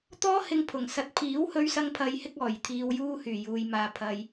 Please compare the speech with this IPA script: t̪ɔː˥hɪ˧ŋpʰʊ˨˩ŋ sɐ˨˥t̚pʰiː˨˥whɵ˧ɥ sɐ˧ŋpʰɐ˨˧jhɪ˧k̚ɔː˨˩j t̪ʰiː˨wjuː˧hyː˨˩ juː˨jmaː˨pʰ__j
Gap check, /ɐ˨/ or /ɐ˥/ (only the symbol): ɐ˨